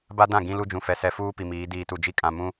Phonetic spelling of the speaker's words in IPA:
b a˦ d ã˦˨ ɡ ĩ˦ l u˦ d͡ʒ ũ˨ f ɛ˨ s ɛ˨ f uː˦ p i˨ m iː˨˦ d iː˨ t u˨ d͡ʒ i˦ kʼ ã˨ m ũ˦

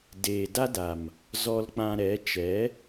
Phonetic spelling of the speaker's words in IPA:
d eː˨ d a˦ d a˨ m | z ɔ˧ l k͡p ã˧ ɾ ɛ˨˦ t͡ʃ ɛ˨˦

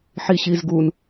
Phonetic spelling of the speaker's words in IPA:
ħ i ɕ i z ɡ u n

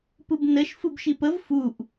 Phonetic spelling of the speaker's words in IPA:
p ɯ b n ə ʃ f ɯ b ʃ i p ə v f u ʔ

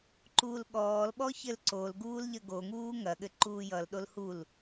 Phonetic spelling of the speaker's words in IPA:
ǃ uː l ɠ ɔː l ɓ ɔ ç ɘ l ǀ o l ɡ uː l ʎ ə ɡ o ŋ uː ŋ ɐ ɠ ɘ ǃ uː j ʌ l ɗ o l h u l

